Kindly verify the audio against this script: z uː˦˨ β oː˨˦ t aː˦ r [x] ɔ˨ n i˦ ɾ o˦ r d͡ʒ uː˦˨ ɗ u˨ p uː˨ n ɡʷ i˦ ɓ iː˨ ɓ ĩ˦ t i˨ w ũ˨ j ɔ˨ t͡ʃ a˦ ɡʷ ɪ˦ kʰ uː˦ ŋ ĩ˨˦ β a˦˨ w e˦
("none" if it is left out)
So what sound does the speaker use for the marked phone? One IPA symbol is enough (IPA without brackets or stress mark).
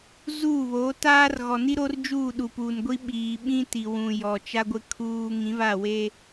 ɣ